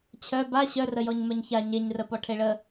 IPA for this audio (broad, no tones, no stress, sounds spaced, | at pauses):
t͡ɕʰ œ b a ɕ œ r ə j ɔ ɲ m œ ɲ ç a ɲ e ɲ r ə p ɔ ʈʰ e ɭ ə